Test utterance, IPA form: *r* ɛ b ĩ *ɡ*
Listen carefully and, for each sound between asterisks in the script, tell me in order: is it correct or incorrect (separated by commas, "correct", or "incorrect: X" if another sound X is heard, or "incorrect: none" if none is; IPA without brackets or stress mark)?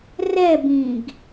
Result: correct, correct